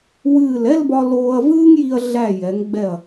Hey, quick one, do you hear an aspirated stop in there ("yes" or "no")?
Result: no